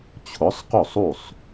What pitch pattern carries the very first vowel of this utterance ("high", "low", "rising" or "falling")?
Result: rising